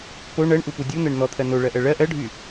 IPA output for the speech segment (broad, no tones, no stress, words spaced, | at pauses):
po ɳɜɳʔupu dʲun̪ɜɳ n̪ɔt̪ʰɜ noɭɜʔɜ ɭɜ ʔɜɖʱy